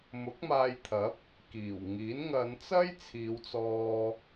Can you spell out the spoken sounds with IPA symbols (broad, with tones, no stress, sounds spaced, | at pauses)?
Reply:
m ʊ˨˥ k̚ m aː˧ j t̪ʰ ɐ˨˥ p̚ | k iː˨˩ w ŋ iː˨˥ n ŋ ɐ˨˧ n t͡s ɐ˥ j t͡sʰ iː˨˧ w t͡s ɔː˧